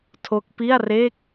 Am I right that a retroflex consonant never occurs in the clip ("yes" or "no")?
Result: yes